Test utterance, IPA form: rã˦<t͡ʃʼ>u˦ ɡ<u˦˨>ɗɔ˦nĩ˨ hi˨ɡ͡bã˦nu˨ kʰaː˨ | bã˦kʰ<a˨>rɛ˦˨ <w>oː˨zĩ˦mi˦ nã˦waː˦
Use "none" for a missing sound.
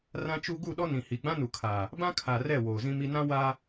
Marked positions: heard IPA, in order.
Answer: t͡ʃ, u˦˨, a˨, w

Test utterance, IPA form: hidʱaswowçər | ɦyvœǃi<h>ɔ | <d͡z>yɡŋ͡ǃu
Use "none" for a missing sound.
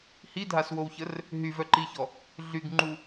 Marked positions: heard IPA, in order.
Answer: ç, ɮ

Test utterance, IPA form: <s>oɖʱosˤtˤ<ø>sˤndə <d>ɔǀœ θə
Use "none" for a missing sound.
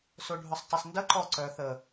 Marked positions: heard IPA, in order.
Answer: s, ɛ, ǃ

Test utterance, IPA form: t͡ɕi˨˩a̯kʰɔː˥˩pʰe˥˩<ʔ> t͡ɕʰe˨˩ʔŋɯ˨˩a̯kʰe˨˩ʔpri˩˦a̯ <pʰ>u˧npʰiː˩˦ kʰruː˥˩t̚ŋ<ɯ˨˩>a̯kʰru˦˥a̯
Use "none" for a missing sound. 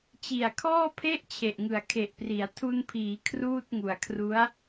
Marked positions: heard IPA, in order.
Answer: ʔ, tʰ, u˨˩

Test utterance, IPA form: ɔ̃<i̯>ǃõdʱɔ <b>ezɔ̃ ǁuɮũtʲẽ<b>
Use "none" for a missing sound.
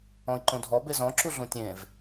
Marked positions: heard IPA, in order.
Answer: i̯, b, v

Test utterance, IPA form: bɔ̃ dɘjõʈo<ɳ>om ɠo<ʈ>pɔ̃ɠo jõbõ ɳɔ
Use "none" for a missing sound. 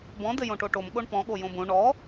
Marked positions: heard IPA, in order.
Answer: ʈ, ɳ

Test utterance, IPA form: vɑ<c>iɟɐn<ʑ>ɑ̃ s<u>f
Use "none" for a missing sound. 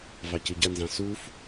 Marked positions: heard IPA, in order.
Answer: c, z, u

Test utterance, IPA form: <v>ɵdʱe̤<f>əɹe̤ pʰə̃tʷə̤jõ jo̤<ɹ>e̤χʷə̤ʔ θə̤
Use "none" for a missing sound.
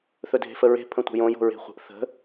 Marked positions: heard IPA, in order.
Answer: θ, f, ɹ

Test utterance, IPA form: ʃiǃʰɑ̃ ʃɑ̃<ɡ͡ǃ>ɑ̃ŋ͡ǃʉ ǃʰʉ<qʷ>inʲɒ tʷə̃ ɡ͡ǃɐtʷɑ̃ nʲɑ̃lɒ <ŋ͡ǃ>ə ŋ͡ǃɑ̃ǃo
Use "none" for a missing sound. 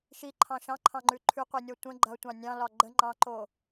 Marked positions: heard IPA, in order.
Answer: ǃʰ, qʷ, ɡ͡ǃ

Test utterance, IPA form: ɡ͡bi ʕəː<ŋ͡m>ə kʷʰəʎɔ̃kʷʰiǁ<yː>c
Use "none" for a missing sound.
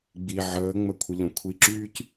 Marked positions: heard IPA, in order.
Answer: ŋ͡m, yː

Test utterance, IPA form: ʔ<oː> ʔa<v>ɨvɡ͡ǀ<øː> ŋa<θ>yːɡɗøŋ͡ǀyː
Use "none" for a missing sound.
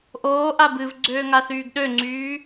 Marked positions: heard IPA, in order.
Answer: oː, b, øː, θ

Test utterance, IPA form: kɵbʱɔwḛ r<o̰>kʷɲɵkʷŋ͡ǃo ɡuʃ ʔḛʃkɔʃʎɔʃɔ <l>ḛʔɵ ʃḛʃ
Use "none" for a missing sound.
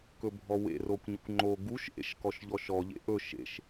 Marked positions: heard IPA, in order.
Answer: o, ʎ

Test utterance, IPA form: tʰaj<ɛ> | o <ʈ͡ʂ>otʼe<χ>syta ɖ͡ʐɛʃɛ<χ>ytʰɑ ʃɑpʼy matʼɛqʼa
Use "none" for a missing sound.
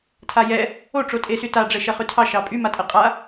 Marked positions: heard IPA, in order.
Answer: ɛ, ʈ͡ʂ, none, χ

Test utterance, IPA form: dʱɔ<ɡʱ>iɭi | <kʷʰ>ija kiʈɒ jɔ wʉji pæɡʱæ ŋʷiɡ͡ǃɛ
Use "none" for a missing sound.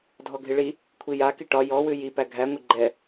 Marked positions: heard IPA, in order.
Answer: ɡʱ, kʷʰ

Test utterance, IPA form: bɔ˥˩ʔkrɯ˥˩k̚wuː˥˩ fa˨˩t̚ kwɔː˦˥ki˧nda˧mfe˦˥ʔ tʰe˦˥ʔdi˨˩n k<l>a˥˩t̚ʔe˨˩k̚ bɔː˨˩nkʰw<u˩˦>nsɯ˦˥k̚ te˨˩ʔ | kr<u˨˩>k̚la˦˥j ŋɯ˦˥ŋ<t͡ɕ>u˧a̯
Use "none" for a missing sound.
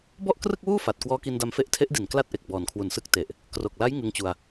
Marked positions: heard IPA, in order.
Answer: l, u˨˩, o˨˩, t͡ɕ

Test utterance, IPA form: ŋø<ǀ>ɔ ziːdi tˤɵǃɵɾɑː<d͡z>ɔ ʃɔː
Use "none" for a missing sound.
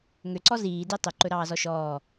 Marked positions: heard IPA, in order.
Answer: ǀ, z

